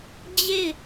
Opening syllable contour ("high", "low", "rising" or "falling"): falling